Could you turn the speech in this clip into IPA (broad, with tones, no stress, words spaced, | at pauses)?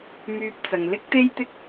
myː˧p̚ t͡sɐ˨ŋ lɪ˥k̚t̪e˥jt̪ɪ˥k̚